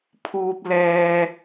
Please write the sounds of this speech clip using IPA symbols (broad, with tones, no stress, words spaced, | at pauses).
pʰuː˨p̚lɛː˨